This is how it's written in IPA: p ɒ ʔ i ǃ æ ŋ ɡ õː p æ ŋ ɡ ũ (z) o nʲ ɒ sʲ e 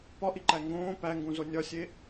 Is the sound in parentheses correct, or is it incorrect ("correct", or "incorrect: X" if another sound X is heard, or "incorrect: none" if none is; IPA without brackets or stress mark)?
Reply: correct